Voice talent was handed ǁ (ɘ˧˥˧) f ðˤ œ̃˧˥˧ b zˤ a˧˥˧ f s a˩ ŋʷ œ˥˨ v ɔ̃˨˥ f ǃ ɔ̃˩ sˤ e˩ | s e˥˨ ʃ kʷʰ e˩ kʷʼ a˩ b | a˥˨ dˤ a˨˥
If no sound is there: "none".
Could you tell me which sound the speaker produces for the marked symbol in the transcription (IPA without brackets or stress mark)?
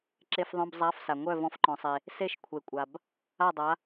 e˧˥˧